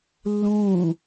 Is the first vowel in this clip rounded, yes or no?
yes